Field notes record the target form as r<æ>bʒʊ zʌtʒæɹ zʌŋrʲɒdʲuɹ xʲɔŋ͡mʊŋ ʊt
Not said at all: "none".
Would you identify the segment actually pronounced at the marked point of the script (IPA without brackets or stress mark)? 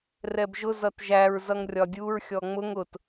ɛ